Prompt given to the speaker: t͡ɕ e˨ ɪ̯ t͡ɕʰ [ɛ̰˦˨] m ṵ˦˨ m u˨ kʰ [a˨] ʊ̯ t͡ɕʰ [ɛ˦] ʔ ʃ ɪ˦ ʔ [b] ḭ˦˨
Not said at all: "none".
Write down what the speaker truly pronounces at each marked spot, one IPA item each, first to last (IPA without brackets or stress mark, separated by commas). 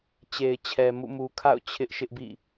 ɛ˨, a̰˦˨, ɪ˦, b